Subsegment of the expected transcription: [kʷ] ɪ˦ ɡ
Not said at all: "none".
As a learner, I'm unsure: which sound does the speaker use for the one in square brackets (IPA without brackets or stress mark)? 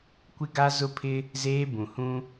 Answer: kʷ